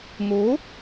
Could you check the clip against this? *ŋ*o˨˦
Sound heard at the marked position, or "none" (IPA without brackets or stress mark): ŋ